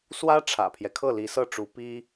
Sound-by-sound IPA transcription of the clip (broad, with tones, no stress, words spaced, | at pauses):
swä˥ ʈ͡ʂʰä̰˨˩pʰjɛ˦ kʰɤ˥˩li˧˥sɤ˥˩ʈ͡ʂu˧˥ pi˥